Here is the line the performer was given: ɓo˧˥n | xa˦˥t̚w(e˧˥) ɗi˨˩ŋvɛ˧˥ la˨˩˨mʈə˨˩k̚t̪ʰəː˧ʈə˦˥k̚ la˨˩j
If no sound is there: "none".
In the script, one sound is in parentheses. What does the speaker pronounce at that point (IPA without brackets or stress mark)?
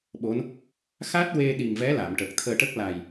e˧